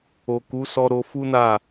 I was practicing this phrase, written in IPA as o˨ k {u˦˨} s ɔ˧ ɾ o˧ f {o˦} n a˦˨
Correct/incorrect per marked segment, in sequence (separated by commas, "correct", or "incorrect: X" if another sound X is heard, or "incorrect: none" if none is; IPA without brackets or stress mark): incorrect: u˨˦, incorrect: u˦